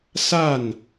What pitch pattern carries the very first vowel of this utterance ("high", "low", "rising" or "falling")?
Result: falling